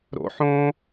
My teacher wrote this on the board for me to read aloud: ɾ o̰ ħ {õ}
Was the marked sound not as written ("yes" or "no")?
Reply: no